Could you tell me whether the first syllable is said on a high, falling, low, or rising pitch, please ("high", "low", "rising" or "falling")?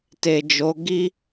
low